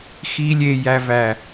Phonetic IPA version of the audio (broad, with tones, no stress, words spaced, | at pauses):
xi˦lʲe˧jæ˧væ˨